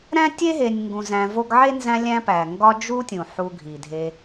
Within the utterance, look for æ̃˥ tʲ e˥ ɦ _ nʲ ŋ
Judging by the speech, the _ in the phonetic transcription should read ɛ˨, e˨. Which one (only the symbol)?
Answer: e˨